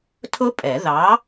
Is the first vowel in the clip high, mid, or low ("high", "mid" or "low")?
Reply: high